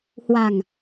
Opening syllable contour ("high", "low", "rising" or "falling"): low